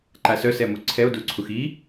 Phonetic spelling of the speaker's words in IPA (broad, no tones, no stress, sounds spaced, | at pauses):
ǃ a s œ s ɛ m u ǀʰ ɛ o̯ d u ǀʰ u x i